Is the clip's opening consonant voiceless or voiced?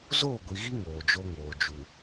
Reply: voiced